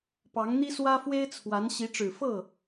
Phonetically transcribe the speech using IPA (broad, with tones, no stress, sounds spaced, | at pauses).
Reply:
p ɑ˧˥ ŋ n̪ i˥ s w ä˥ f w e˥ ɪ̯ t͡sʰ w a˧˥ n ɕ i˧˥ ʈ͡ʂ ɻ̩˨˩ f ɤ˥˩